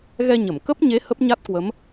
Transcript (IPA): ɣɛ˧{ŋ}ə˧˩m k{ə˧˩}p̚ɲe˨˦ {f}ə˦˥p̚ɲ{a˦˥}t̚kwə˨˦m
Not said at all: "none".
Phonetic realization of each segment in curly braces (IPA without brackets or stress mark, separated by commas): ɲ, ə˦˥, h, a˦˥